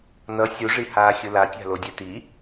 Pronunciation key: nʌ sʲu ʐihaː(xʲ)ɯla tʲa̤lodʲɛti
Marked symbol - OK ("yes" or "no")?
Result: yes